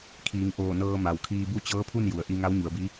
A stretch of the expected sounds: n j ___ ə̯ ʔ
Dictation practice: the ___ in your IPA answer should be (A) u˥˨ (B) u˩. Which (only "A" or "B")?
B